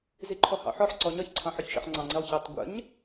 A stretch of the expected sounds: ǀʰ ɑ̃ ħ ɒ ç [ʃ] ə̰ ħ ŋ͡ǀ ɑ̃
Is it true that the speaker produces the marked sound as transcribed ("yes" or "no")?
yes